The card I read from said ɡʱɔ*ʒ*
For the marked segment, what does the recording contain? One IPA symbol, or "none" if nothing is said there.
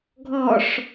ʂ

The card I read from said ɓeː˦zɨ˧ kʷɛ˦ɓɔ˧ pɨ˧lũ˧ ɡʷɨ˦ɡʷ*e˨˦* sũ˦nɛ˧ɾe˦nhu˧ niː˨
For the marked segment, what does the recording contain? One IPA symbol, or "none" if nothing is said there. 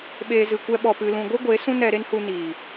e˨˦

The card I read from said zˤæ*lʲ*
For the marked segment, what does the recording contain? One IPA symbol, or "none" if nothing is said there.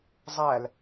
l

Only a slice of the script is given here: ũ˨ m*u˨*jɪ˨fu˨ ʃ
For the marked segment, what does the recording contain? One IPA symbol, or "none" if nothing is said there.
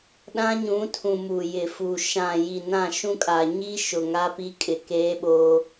u˨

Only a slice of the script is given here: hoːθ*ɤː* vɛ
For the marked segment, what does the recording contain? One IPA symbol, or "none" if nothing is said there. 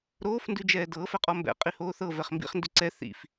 ɤ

